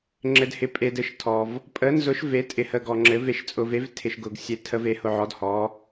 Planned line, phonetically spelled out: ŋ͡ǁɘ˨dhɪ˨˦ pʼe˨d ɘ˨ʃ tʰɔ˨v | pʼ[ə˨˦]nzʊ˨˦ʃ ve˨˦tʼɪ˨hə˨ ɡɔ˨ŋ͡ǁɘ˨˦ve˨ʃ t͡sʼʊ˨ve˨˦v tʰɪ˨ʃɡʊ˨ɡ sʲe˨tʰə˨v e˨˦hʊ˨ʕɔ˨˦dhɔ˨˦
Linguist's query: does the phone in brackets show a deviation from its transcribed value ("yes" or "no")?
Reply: no